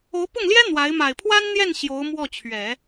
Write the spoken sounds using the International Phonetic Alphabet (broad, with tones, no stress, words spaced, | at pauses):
o˧˥ʊ̯pʊ˥˩ŋljɛ˥ n̪wa˧˥ɪ̯ ma˨˩ɪ̯pʰwa˥nn̪jɛ˥˩n ɕjo˧˥ʊ̯mwɔ˥˩t͡ɕʰɥɛ˨˩˦